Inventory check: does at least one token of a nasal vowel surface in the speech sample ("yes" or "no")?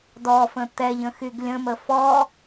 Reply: yes